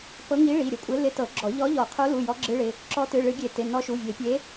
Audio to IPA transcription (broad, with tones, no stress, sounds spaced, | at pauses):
p ɤ˧˥ ŋ i˧˥ ɭ i˩˧˩ ɾʲ ɤ˧˥ kʷʼ ɪ˧˥ l ɪ˧˥ t ɤ˨˩˦ ɡ͡ǁ ɔ˨˩˦ ʎ ɔ˧˥ ʎ ɔ˨˩˦ qʰ o˧˥ l u˩˧˩ j ɔ˧˥ ɡ͡ǁ ɨ˧˥ ɭ ɪ˩˧˩ | ǁ ɔ˧˥ t ɨ˩˧˩ ɭ ɨ˨˩˦ ɡʲ e˨˩˦ t ɪ˩˧˩ n ɔ˧˥ ʃ u˩˧˩ vʲ e˨˩˦ pʲ e˧˥